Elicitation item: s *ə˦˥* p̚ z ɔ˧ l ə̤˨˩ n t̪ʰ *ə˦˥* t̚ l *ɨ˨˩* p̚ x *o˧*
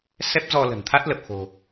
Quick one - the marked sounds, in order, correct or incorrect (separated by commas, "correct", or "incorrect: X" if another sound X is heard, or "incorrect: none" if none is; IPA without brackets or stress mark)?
incorrect: ɛ˦˥, incorrect: a˦˥, incorrect: ə˨˩, incorrect: o̤˨˩